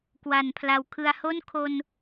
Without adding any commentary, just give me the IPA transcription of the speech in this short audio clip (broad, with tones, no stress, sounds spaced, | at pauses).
k w a˩˦ n pʰ l a˨˩ w kʰ ɯ˨˩ a̯ h o˥˩ n kʰ o˧ n